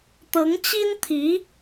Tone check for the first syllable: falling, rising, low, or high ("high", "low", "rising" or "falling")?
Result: rising